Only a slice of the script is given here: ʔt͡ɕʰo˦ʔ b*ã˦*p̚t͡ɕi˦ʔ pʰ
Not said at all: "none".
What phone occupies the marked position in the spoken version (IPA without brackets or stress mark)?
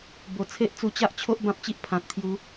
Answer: ã˦